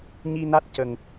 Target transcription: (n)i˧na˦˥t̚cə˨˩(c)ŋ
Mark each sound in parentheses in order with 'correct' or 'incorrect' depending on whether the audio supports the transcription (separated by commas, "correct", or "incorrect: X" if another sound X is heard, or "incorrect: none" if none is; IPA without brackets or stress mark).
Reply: incorrect: ɲ, incorrect: none